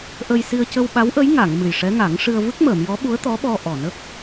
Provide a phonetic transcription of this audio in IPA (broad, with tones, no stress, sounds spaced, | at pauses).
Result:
ʔ ə˧ j s i˧ ə̯ c ə˧ w ɓ a˧˥ w ʔ ə˧˥ j ŋ a˨˩˨ ŋ m ɨ˨˩ j ʂ ɛ˧˥ ŋ a˨˩˦ ŋ ʂ ɨ˧ ə̯ v ɨ˦˥ k̚ m əː˨˩˨ m j ɔ˧˥ ɓ u˧˥ ə̯ t̪ ɔ˧˥ ɓ ɔ˧ ʔ ɔ˨˩ n ə˦˥ k̚